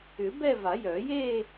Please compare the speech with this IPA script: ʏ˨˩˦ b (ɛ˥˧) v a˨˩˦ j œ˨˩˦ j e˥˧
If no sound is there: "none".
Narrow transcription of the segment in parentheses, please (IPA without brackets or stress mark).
ɛ˥˧